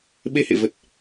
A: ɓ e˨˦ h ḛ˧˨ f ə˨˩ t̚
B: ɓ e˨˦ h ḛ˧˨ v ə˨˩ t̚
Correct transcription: B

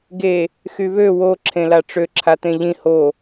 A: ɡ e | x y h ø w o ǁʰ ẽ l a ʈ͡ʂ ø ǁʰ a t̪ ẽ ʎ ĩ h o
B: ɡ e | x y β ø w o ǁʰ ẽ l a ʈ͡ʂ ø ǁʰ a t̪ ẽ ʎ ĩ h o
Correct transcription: B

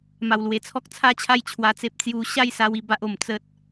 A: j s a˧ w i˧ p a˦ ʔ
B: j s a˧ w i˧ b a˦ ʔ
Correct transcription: B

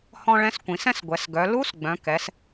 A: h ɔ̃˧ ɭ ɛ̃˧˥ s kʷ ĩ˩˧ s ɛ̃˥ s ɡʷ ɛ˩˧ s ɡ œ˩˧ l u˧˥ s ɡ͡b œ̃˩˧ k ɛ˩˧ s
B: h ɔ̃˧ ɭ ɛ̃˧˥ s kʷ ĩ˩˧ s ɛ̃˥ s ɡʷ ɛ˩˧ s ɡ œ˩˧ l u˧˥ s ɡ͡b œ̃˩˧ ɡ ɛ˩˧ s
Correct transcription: A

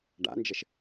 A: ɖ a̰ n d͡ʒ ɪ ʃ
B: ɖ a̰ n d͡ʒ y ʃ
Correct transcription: A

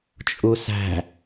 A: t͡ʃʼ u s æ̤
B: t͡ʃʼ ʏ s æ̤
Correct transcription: A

